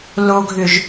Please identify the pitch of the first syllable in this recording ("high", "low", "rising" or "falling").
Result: high